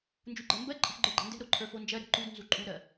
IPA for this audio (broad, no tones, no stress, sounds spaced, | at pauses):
n d͡ʒ u ɡ͡ǃ ɜ m b ɜ ǃʼ ə̤ ħ ɡ͡ǃ ə˞ ɡ͡ǃ ɛ̤ n d ɛ̤ ɾ o ǃʰ ə˞ f o n d͡ʒ ɜ ɾ ɛ̤ ǃ u d n z u ǃʼ u ɾ ɜ